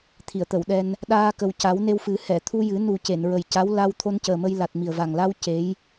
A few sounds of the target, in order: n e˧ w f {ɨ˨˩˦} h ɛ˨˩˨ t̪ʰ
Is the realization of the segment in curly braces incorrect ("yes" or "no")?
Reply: no